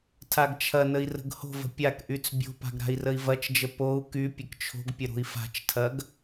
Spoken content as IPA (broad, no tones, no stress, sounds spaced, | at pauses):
tʰ a ɡ t͡ʃʰ ɐ n ə i̯ r ə̤ ɡ h o̤ v ə̤ pʲ a k ʔ y t͡s bʲ o̤ p a̤ ɡ ɾ a̤ i̯ r ə i̯ v ɐ t͡ʃ d͡ʒ ə p o u̯ k y pʲ ə k t͡ʃʰ o̤ ɡ pʲ ə ɾ o̤ i̯ f a̤ t͡ʃ tʰ ɐ ɡ